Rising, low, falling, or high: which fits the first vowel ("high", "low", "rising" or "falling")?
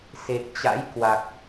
low